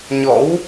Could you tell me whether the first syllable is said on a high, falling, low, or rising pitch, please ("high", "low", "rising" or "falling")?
rising